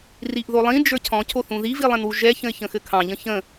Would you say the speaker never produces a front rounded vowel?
yes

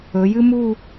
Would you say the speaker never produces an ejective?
yes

